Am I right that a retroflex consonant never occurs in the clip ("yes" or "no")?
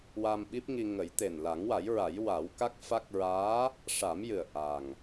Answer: no